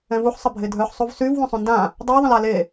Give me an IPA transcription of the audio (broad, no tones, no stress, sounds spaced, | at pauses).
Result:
ɛ̃ v u ħ sˤ ə bʱ e dʱ œ ħ sˤ u v s y v w õ sˤ õ n d ã | dˤ y ðˤ ə̃ l a l e